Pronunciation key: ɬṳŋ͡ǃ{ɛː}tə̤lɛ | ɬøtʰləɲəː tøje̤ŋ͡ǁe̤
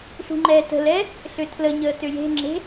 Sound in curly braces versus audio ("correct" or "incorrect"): correct